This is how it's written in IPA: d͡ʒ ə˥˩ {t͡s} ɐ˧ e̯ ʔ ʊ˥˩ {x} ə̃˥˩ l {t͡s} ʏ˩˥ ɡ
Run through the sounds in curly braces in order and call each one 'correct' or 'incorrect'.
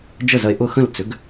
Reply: incorrect: z, correct, correct

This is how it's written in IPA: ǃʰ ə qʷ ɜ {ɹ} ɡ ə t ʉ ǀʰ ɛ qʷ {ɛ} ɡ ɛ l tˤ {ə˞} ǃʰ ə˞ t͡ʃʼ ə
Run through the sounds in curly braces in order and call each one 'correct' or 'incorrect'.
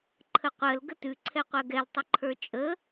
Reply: incorrect: l, incorrect: ɜ, incorrect: ə

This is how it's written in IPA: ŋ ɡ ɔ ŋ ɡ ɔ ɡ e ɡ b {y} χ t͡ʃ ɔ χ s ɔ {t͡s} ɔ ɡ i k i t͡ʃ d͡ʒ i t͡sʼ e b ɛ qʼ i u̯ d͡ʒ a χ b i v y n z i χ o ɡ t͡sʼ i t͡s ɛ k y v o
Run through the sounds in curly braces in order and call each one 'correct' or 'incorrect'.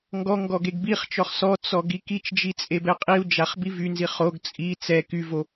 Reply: incorrect: i, correct

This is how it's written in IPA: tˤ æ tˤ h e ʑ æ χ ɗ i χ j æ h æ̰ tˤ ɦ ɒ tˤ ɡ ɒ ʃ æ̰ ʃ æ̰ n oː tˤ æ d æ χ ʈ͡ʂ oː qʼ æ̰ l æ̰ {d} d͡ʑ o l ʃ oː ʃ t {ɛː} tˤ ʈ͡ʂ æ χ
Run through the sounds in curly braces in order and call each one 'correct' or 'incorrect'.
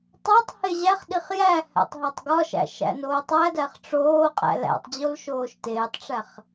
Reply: incorrect: tˤ, incorrect: eː

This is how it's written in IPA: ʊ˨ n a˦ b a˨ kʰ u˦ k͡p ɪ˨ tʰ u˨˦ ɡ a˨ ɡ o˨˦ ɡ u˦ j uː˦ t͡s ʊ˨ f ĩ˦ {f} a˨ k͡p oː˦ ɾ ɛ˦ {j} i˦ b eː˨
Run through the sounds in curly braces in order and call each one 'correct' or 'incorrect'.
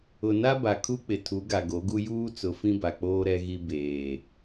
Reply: incorrect: b, incorrect: ɣ

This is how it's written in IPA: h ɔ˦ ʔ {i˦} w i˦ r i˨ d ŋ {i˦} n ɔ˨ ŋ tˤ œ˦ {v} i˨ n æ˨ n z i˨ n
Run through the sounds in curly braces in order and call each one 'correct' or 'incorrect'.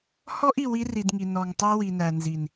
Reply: incorrect: i˨, incorrect: i˨, incorrect: w

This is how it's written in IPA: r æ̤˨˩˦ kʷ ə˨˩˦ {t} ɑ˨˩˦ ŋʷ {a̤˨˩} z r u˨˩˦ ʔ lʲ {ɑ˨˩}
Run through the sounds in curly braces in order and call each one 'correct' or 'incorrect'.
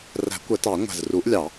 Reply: correct, incorrect: æ̤˨˩, incorrect: ɑ˨˩˦

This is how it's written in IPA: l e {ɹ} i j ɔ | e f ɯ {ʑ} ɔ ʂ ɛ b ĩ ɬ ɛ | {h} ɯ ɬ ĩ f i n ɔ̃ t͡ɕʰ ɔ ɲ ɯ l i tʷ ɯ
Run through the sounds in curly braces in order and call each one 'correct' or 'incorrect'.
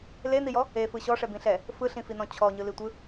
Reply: incorrect: n̪, incorrect: ɕ, incorrect: f

